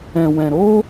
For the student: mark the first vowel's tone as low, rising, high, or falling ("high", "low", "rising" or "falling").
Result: low